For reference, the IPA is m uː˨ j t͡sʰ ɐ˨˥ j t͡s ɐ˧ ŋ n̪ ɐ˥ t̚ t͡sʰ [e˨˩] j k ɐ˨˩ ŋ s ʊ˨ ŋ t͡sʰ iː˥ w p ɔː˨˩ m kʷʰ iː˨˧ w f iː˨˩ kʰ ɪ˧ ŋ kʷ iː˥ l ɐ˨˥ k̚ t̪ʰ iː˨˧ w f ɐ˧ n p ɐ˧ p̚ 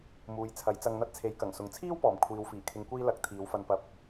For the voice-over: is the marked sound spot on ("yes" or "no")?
no